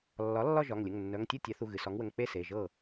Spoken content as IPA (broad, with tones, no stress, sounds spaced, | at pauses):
lː ɒ˩˥ lː ɒ˥˧ ʒ ɒ˩˧˩ ŋ lʲ ə˩˧˩ ŋ nː œ˩˧˩ ŋ tʲ ɤ˥˩ tʲ a˩˥ θ u˩˧˩ ɣ ɨ˩ s ɒ˩˥ ŋ w ə˩˧˩ ŋ k͡p e˥˩ s e˩˧˩ ʒ ɤ˥˩